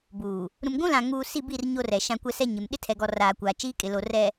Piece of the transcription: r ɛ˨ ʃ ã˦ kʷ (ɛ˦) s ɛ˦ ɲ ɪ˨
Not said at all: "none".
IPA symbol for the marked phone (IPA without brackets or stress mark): ɛ˦